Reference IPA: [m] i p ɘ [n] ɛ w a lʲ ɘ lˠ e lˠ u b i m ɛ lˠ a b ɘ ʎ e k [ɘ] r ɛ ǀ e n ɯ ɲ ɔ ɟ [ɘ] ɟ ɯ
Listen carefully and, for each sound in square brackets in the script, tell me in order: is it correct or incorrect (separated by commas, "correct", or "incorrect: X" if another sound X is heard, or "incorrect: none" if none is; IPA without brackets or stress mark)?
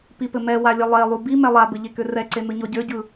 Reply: incorrect: p, incorrect: m, incorrect: ø, incorrect: ø